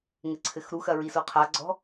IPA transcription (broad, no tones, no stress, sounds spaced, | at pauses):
ŋ ɘ ǀʰ ɘ x ɾ u x ɐ ɹ i s o qʰ a ɡ͡ǀ ɔ̤